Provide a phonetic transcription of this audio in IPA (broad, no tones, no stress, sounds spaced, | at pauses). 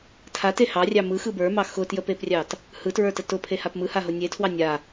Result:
tʰ a t e h ɑ rʲ ɑ m ɯ x ɯ b ə˞ m ɑ x ʊ t j ə p e p rʲ ɑ t | h ɯ t ɹ ə˞ t ə t ʊ pʰ e h a p m ɯ h a ɦ ʊ nʲ e tʰ w ɑ nʲ a